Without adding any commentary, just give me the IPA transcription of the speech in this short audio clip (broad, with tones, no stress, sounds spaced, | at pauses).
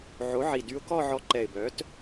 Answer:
ʕ o˩˥ ʕ i˨˩ d y˧ ʊ̯ k ɔ˥˧ ʕ ɔ˧ ǃ ɛ˨˩ ɪ̯ b œ˩˥ t